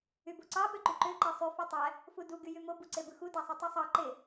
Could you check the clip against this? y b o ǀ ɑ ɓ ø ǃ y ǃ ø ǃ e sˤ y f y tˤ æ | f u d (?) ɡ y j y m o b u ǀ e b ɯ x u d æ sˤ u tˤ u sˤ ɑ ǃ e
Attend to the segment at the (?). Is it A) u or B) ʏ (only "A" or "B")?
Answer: A